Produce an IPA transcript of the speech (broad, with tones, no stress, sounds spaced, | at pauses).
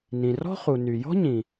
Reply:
n ĩ˩ r ɔ̤˥ χ u˩ n y˩ j ɔ̤˥ ɲ ĩ˩